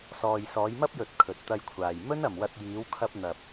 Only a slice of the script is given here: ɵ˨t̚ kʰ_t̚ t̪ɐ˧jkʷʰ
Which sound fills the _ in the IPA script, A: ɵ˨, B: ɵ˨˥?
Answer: A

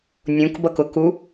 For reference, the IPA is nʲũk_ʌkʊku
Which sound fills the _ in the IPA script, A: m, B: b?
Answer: B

